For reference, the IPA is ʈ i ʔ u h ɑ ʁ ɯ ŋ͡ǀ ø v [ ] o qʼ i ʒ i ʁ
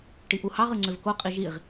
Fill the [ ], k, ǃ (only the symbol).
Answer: k